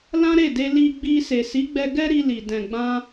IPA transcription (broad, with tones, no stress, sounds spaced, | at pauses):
l ã˦ ɾ e˦˨ d e˧ l i˧ ɡ͡b i˧ s e˨ s i˨˦ ɡ͡b ɛ˧ ɡ ɛ˦ ɾ i˧ l i˨ d ɛ̃˨ ɡ͡b ã˧